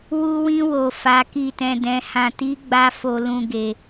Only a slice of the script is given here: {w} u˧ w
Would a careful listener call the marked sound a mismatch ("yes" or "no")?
no